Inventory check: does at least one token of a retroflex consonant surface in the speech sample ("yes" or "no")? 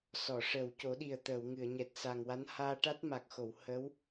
yes